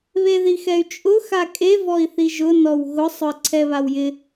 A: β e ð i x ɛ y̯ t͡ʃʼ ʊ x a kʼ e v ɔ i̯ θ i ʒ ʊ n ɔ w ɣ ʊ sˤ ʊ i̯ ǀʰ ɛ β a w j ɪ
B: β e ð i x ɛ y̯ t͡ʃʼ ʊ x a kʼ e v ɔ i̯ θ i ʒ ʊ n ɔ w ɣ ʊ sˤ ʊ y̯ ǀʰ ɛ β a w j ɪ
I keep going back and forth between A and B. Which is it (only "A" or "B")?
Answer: A